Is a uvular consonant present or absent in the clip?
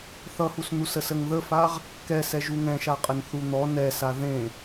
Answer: present